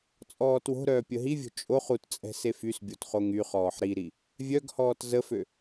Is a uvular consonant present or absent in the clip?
present